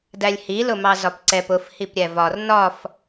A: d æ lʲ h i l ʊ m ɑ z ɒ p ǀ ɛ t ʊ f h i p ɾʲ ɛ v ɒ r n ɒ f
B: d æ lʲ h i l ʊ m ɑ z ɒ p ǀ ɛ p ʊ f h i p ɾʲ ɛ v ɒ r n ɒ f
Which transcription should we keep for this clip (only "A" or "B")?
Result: B